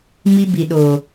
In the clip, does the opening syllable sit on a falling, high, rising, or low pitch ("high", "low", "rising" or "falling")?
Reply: high